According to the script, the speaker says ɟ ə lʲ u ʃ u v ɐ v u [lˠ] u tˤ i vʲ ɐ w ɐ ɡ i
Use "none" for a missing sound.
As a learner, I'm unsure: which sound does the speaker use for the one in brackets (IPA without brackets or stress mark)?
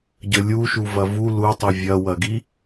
l